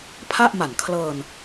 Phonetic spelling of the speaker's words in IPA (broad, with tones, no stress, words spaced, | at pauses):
pʰa˥˩ʔma˨˩n kʰlɤː˧n